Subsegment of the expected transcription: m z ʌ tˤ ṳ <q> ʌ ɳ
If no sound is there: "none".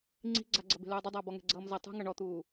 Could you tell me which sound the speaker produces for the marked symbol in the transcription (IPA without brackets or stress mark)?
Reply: ŋ